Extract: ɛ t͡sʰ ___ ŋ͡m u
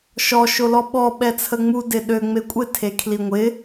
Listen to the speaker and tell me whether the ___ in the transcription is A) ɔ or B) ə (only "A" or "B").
B